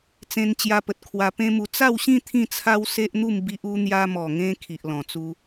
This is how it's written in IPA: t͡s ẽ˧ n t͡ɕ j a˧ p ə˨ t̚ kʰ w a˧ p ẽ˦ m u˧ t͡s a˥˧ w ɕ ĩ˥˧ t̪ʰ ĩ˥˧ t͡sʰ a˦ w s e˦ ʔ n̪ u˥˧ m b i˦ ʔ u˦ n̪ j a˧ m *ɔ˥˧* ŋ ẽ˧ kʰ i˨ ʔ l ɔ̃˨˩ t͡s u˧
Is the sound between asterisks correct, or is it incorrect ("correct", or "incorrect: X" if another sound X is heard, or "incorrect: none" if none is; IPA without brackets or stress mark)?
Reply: incorrect: ɔ˨˩